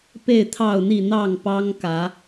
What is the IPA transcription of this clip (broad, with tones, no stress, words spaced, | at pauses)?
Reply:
pe˥˨ɪ̯t̪ʰɑ˥˨ʊ̯n̪i˥˨ n̪ɑ˥˨ŋpɑ˦ŋkä˨˦